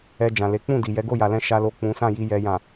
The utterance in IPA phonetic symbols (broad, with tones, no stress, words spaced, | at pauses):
ɛ˧d͡ʒã˨le˨˦ k͡pũ˦˨di˨ jɛ˨˦ɡo˦˨ja˨lɛ̃˧ ʃa˨lo˨ k͡pũ˨˦sã˦˨ji˧ jɛ˨jã˨